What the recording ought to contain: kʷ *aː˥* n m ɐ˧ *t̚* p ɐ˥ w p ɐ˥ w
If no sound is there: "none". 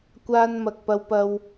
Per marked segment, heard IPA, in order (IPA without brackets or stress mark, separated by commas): aː˥, k̚